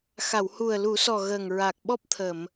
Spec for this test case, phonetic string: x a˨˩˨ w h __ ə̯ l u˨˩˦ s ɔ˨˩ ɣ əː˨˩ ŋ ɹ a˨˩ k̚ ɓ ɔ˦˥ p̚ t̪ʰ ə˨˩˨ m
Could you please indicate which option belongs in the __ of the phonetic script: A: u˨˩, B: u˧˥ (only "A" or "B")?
A